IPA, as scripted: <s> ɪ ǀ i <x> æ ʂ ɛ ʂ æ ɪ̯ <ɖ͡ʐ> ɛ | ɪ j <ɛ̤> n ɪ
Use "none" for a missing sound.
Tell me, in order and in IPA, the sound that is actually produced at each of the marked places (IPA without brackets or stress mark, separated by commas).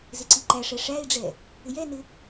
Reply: z, ǃ, ɖ͡ʐ, ɛ